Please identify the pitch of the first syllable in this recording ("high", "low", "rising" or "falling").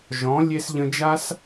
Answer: rising